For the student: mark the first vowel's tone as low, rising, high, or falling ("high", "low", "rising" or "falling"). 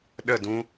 falling